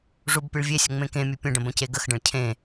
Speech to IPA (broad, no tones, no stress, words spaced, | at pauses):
ʐubpʲɨɭvʲesʲə ŋ͡mẽkẽmʲɨ pʲə̃ɖə̃ bə̃ceɡəxɖə̃ɭ cʰẽ